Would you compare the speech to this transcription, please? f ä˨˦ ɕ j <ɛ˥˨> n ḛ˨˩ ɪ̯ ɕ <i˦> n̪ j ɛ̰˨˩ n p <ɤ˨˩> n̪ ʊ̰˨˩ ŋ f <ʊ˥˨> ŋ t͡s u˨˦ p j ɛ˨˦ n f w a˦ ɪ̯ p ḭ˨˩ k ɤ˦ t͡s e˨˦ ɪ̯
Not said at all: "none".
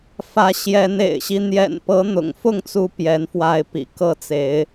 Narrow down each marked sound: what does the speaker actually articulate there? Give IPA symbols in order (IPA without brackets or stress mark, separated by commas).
ɛ˨˦, i˦, ɤ˨˦, ʊ˥˨